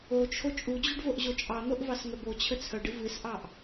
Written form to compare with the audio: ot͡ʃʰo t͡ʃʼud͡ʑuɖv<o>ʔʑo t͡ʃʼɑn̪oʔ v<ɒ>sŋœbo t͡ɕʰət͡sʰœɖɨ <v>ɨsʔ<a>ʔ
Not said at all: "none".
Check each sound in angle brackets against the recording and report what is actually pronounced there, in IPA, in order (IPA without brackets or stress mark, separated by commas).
o, ɑ, v, ɑ